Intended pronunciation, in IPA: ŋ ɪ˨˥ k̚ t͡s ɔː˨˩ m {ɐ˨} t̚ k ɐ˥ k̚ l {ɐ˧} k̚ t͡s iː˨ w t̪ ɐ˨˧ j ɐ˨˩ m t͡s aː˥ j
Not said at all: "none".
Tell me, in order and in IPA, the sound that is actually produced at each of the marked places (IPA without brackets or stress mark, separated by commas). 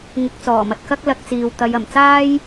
ɐ˨, ɐ˧